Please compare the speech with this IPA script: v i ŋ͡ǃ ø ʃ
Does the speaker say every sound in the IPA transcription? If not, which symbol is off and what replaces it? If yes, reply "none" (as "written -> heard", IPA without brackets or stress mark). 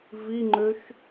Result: none